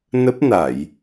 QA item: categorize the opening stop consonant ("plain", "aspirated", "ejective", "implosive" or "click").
plain